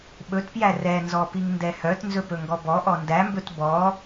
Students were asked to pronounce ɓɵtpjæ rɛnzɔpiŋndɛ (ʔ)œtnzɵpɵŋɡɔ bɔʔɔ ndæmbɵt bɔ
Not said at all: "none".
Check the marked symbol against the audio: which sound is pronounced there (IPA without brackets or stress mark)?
h